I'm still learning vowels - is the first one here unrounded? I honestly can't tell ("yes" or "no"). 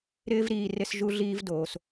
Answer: yes